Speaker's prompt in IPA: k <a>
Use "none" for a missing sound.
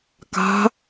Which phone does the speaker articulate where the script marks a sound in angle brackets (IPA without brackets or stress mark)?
a̤